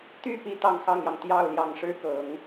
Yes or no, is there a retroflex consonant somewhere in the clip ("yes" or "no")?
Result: yes